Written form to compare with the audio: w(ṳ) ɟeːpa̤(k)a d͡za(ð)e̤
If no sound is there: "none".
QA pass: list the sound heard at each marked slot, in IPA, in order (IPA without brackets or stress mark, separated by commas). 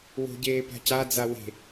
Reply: o̤, c, w